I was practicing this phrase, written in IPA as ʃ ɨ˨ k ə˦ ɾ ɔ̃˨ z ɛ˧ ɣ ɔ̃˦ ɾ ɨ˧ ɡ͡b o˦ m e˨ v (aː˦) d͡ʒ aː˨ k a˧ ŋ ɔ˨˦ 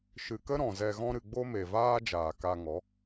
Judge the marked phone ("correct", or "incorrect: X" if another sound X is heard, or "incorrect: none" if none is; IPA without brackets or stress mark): correct